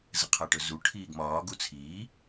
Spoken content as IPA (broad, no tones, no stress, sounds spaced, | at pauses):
z ə qʰ a ʈ ɵ z u ʈʰ iː ɡ m ɒː ɡ u t͡sʰ iː